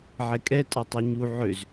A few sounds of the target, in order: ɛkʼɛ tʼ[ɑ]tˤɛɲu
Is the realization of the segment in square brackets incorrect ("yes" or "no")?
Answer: no